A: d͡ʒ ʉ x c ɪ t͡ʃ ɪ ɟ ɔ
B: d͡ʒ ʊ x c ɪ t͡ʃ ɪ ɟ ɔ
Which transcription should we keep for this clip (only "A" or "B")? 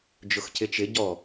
B